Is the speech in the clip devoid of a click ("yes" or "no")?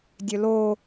yes